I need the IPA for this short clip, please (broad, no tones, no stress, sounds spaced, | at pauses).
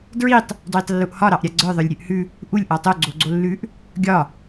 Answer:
d ɹ i tˤ | d w i tˤ lː u ʔ h ɒ ɾ ɑ ʔ ɾʲ a ɡ͡ǀ ə˞ ðˤ ə˞ lʲ ɾʲ ʉ ʔ h ʉ | ʔ u lʲ ʔ ɒ tˤ o ɡ͡ǀ o ɡ͡ǀ o lː ʉ ʔ | ɡʲ ɒ